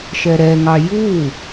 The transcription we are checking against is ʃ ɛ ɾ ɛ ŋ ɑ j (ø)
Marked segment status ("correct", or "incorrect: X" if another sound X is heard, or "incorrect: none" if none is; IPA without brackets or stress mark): incorrect: u